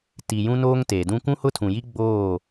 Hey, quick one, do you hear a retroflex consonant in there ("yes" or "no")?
no